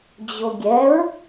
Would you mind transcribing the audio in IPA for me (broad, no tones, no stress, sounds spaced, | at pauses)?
d͡ʑ o ɡʲ ɛ ɹ